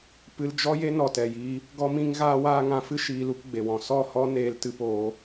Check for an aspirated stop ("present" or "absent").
absent